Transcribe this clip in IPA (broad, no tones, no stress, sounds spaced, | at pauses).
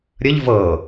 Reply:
ɾʲ ə ʎ v ɤ